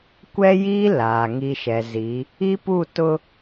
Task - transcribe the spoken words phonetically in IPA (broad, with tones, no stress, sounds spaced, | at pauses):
kʷ ɛ˦ j i˦ l aː˨ ŋ i˦ ʃ ɛ˨ z i˨˦ | i˦ p u˦˨ t ʊ˦